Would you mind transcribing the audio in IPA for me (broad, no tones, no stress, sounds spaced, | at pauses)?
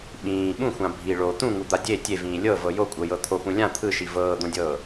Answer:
ɓ ĩː ɓ ũ xʷ ã bʱ i ɭ o t̪ ũ ŋ u d̪ a dʲ e tʲ e v ĩː lʲ ɤ v ɤ j o kʷʼ ɤ j ɤ t̪ʰ o p ũ lʲ ã t̪ʰ ɯ ʃ i v ɤː d̪ õ dʲ ɤː